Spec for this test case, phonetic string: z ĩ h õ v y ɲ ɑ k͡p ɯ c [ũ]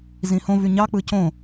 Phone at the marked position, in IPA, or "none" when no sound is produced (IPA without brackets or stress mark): õ